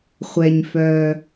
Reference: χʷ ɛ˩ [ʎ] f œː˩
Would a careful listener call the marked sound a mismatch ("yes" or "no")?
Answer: yes